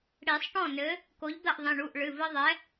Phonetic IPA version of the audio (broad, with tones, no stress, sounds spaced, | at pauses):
ɽ i˨˩˦ sˤ ʈ ɔ̃˥˩ n ɘ˨˥ | k o˨˥ ʎ d̪ ɐ˥˩ ʔ ðˤ ĩ˩˧˩ ɳ u˩˧˩ ʔ ɭ ɨ˩˧˩ v ɘ˦ ðˤ ɛ˨˥